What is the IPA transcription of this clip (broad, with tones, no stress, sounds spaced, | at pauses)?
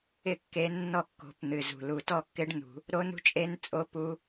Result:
ɪ˥˩ kː e˨˥ nː ɔ˥˩ kː o̤˨˥ p n̪ ɨ˨˩ z ṳ˨˩ l u˨˩ t ɔ˥˧ kː ɪ˦˥ ɖ n ṳ˧˩˧ | ɾ o˦˥ n ṳ˦˥ t͡ʃʼ e˦˥ n t͡sʼ o˦˥ p u˦˥